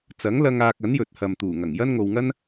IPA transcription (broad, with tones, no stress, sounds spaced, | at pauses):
t͡s ɐ˨˥ ŋ l ɐ˧ ŋ aː˧ k̚ ɐ˨˥ n j ɵ˨ t̚ h ɐ˨ m t̪ uː˨˩ ŋ ɐ˨˩ ŋ j ɐ˥ n ŋ o˧ w ŋ ɐ˥ n